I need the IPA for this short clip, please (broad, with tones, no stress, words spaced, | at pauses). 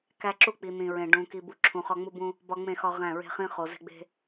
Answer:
kæ˦ǁu˦ k͡pi˨n̪ĩ˨ ɹẽ˨ ɖũ˨ ki˨bu˨ ǁʰũ˨χɒ˦ŋ͡mu˦bũ˦ | bɒ˦ŋ͡mẽ˦˨xɒ˦ʁæ̃˦˨ ɹe̤˦χĩ˦ χo˨ ze̤˦ɡ͡be̤˦